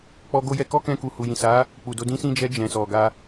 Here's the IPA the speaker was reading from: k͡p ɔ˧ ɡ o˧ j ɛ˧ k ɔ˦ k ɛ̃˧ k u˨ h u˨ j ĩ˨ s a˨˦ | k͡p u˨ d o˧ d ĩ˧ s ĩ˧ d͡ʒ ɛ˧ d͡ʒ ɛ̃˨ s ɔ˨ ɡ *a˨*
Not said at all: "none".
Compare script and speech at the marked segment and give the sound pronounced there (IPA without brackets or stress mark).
a˧